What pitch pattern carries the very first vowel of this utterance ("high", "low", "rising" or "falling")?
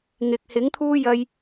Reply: low